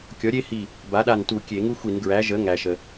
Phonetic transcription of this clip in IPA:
kʲ ɔ˩˥ ɾʲ e˦ h i˧˩ | b a˩˥ ɗ a˧˩ n t u˧˩˧ kʲ e˧˩˧ ŋ u˦ xʷ i˧˩˧ n ɡ ɹ æ˩˥ ʒ ə˩˥ ŋ æ˩ ʃ ə˩

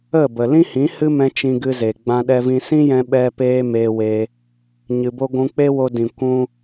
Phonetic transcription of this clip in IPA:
ə˦˨ b ə˨ l ĩ˦ h ĩ˨˦ h ɨ˦ m ɛ̃˧ t͡ʃ ĩ˧ ɡ ɨ˧ z e˨ ɡ͡b ã˦ ɗ ɛ˦ v ĩ˦ s ĩ˦ j ɛ̃˧ ɓ ɛ˦ p eː˦ m eː˧ w e˧ | ɲ ɨ˧ b o˦ ɡʷ ũ˧ k͡p e˦ w o˧ d ĩ˨ kʷ ũ˦

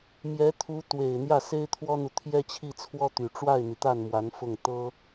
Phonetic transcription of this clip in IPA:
m j ɛ˧˥ t̪ʰ u˧˥ t̪ w e˨˩ ɪ̯ n̪ j ä˥˩ s e˥ ɪ̯ t̪ʰ w ɔ˥ n̪ u˨ t̪ʰ j ɛ˥ t͡ɕʰ i˥˩ t͡sʰ w ɔ˥ t̪ y˨˩ ʈ͡ʂ w a˥˩ ɪ̯ n̪ i˩ t̪ a˥˩ n m w a˧˥ n f ʊ˥˩ ŋ t̪ ɤ˥

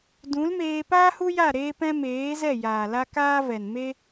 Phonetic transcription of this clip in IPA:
d ũ˨˦ l m eː˧ p aː˦ h u˦ j a˦˨ ɾ eː˦ p ɛ̃˦ m eː˨˦ z ɛ˦˨ j aː˨ l a˦ k aː˦ v ɛ˨ n m e˦

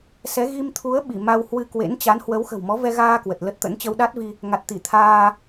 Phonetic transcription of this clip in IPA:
s ɛ˨˦ ɣ i˧ m t̪ʰ u˨˦ ə̯ ɓ i˧˩ m a˧ w h w ɨ˧ k w ḛ˧˥ n t͡ɕ a˨˦ n h w ə˨˦ w x ə̤˨˩ w m ɔ˨˦ v ɛ˧ ɣ aː˧ k w ə˨˩ t̚ l ə˦˥ t̚ t̪ ə̰˧˥ n t͡ɕ ə˧ w ɗ a˦˥ t̚ v i˧ | ŋ a˨˩ t̚ t̪ i˧˩ t̪ʰ aː˧

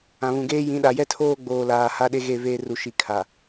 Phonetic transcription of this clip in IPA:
ã˨ β ũ˨ ɡ eː˦ j ĩ˨˦ ɗ a˨ j ɛ˦ tʰ oː˦ ɡ͡b oː˨ l aː˨ h a˦ ɗ e˦ ɣ e˦˨ v eː˦ r u˨ ʃ i˨ kʰ a˨

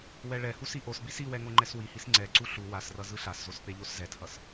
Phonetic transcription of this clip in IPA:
w ɛ ɭ ɛ h u s i ʔ o s b i s i w ɛ ŋ o ŋ͡ǃ ɛ s w i h i s ŋ͡ǀ ɛ ǀ u ɬ u w a s r ʌ z ɯ ɬ a s z o s p e ʎ o s z ɛ tʰ ʌ s

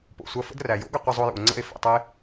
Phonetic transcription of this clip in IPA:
p o̰˨ sʷ ɐ˧ f ə̰˦ d r æ˨ j o̰˦ ɡ ɐ˧ qʷ ə˧ zˤ o˧ j ṵ˨ o̯ ŋ͡ǀ ə̰˦˨ e̯ f ɛ̰˨ tˤ ɛ˦ e̯

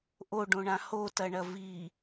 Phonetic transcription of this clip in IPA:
ʔ o ɖ õ ɳ ã h o t ɐ ɳ ɐ v i

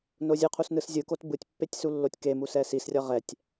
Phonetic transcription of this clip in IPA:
n o zʲ ɯ qʰ u s n ɯ s zʲ ɯ k o t b ɯ tʲ pː e tʲ s u lː o tʲ k e m u s ɛ s i s rʲ ʌ ʁ ɛ tʲ

